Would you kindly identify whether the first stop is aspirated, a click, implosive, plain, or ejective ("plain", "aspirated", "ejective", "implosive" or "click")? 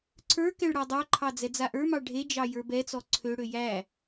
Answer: click